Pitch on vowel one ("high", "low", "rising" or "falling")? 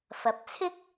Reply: rising